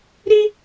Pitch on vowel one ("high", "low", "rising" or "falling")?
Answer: high